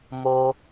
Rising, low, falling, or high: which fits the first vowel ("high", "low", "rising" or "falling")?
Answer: high